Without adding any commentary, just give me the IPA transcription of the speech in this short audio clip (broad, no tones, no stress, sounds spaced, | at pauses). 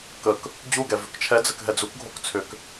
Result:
k ə k | d͡ʑ u ɡ ɛ v ʏ k t͡ʃʰ ɛ d͡z ə k ɦ ɛ d͡z u k ɡʱ o k t͡sʰ ʏ k